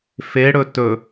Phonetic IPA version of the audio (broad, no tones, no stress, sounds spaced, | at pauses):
f e ɽ ɵ t ɵ